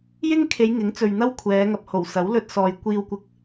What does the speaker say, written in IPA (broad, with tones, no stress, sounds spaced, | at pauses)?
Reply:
j ɪ˥ ŋ kʰ e˨˧ j ŋ ɪ˨˥ ŋ t͡s ɵ˨ ɥ n̪ ɐ˥ w kʷʰ ɛː˨˧ ŋ ɐ˨ p̚ h o˨˩ w s ɐ˨˥ w l ɵ˧ t̚ s ɔː˨ j kʷ iː˧ w kʷ ɪ˧ k̚